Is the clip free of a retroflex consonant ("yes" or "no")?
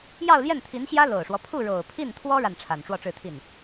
no